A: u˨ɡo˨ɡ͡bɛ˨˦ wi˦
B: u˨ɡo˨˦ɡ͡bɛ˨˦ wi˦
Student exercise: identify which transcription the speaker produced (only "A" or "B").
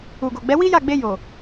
A